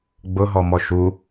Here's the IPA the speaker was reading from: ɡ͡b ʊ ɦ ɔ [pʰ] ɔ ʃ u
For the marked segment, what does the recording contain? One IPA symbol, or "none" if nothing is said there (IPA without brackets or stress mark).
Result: m